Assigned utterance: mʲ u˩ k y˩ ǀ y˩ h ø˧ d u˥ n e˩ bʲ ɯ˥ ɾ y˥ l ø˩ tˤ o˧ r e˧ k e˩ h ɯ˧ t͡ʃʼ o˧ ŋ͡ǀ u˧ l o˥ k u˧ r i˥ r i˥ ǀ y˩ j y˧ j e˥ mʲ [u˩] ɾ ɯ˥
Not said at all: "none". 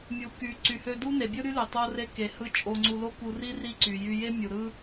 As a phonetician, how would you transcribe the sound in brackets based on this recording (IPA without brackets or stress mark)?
u˩